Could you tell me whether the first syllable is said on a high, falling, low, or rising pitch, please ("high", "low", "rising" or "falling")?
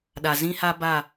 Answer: low